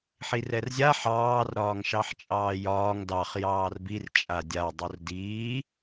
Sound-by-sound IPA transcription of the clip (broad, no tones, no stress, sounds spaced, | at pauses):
ħ i r ɛ r zʲ a ħ ɑː r ɾ ɒː ŋ ʃ ɑ ħ t͡ʃʼ ɑː j ɒː ŋ d ɑ χ j ɑː r b i r t͡ʃʼ a dʲ a dˤ o r d iː